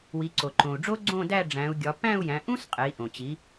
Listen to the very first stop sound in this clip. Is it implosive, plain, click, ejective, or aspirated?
click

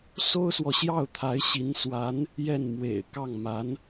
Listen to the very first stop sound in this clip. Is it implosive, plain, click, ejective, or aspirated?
aspirated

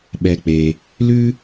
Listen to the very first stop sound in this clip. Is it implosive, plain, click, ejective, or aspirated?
implosive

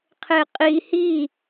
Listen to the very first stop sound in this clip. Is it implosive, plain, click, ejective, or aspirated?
aspirated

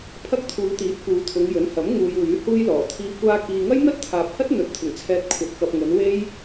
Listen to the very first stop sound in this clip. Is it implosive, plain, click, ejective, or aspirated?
aspirated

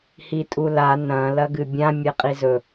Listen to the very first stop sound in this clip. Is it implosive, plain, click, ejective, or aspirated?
ejective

